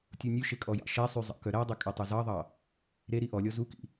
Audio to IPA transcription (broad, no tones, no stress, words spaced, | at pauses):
tʲunʲʉʃe kʼɔjɑ̰ʃɛsˤy zˤɑ̰kœɾædˤɵ kʼɛtˤʉzɑðˤɑ | ɾe ɾiʔɔlʲɔ zukḭ